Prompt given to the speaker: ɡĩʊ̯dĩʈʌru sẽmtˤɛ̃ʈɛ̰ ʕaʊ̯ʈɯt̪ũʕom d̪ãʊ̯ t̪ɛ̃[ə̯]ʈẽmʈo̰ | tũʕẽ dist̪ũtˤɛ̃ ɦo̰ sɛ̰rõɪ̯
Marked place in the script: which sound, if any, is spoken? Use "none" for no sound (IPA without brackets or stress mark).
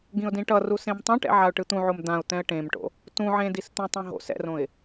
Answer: ə̯